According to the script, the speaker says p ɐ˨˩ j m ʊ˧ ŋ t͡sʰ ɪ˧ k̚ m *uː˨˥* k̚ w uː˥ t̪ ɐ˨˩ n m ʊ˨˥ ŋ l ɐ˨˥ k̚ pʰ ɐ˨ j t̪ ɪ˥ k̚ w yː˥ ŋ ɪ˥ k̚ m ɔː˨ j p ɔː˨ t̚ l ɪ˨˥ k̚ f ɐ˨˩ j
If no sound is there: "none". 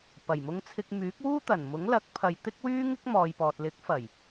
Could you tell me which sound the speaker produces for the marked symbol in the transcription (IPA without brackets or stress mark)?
yː˨˥